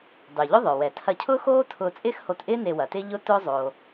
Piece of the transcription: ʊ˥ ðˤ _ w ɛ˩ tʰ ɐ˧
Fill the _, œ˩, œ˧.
œ˩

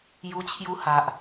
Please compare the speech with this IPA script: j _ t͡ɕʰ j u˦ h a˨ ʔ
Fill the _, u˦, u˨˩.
u˦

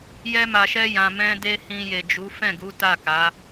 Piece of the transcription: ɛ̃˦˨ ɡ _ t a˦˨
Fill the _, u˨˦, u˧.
u˨˦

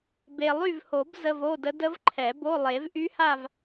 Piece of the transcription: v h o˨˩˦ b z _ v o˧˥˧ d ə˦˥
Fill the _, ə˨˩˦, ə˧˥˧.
ə˧˥˧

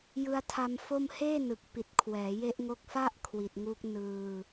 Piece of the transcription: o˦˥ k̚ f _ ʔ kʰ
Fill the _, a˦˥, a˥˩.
a˥˩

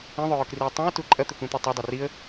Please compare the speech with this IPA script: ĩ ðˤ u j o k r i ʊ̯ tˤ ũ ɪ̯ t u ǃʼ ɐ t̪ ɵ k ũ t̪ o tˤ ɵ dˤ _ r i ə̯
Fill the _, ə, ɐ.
ɐ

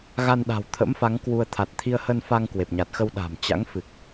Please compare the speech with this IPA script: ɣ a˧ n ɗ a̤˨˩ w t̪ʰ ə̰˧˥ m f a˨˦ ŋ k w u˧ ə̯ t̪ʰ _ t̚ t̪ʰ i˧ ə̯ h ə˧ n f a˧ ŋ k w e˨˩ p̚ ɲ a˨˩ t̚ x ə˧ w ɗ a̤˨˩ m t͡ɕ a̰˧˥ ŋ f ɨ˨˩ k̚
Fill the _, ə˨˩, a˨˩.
a˨˩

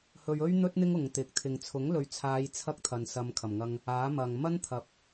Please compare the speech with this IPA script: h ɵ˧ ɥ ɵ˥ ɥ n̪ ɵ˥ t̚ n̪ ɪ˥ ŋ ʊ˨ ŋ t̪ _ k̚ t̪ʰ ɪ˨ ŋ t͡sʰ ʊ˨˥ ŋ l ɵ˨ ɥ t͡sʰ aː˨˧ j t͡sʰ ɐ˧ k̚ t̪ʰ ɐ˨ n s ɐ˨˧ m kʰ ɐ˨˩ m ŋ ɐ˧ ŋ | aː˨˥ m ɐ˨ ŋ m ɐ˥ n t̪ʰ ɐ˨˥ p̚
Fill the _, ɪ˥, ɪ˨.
ɪ˨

